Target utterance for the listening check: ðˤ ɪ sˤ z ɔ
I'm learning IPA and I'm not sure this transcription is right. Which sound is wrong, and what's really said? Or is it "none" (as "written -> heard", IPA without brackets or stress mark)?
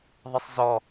none